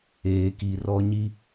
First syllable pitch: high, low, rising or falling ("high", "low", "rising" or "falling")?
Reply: low